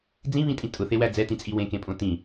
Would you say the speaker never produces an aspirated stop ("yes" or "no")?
yes